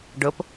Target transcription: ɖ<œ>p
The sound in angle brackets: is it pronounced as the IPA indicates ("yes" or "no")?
no